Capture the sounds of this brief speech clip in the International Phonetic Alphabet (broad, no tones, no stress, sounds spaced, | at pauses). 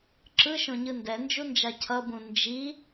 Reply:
ǁ ɯ ʃ õ ɲ ɯ n d ɛ n d͡ʒ u n d͡ʒ a cʰ ʌ b ũ n d͡ʒ i